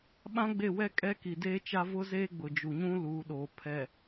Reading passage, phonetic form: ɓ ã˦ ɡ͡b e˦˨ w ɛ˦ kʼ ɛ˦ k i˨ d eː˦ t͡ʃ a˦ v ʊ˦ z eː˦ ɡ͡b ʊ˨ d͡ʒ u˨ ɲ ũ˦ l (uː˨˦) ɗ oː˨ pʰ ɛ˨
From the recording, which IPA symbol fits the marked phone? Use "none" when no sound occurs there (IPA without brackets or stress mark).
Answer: uː˨˦